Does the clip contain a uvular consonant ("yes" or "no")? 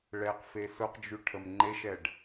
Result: yes